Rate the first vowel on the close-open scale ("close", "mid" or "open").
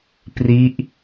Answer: close